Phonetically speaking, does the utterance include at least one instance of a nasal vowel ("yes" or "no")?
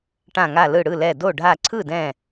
yes